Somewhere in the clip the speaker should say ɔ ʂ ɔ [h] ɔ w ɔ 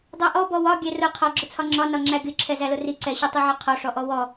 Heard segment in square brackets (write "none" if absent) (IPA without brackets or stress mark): ʔ